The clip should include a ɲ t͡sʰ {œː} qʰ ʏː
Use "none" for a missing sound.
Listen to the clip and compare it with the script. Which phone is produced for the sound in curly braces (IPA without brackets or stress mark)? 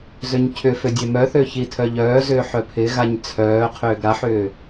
œː